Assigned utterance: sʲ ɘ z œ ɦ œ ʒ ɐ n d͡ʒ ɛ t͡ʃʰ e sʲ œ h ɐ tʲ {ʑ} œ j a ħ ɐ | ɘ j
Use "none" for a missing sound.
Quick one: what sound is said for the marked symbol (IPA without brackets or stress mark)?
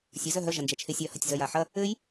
z